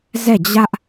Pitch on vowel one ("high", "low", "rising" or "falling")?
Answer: falling